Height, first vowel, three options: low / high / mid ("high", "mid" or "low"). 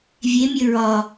mid